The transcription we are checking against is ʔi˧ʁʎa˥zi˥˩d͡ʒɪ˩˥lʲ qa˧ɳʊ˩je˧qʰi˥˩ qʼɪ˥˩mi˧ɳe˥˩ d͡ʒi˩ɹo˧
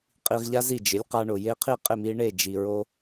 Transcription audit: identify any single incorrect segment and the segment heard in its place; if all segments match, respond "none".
ʔ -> qʼ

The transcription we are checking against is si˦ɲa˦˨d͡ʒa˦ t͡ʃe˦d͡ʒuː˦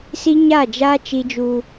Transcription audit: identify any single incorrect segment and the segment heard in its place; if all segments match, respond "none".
e˦ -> i˦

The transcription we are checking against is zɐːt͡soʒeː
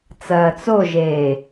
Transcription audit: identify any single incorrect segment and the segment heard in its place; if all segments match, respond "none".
z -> t͡s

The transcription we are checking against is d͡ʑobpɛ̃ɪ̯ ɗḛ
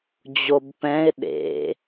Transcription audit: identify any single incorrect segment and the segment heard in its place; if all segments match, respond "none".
none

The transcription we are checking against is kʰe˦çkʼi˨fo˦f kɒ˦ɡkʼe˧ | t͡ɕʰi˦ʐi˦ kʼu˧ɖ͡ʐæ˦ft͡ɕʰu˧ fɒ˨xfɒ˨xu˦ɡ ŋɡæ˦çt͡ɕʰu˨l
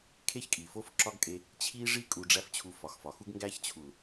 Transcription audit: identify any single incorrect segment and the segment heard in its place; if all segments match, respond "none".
k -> ǁ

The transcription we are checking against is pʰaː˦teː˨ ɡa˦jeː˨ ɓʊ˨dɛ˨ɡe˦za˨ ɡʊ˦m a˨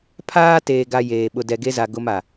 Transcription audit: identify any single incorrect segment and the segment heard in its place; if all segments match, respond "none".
none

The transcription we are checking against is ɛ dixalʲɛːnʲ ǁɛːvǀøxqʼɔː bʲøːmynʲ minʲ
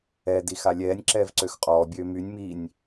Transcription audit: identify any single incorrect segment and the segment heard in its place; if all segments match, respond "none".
none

